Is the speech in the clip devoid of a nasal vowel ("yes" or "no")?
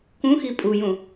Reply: no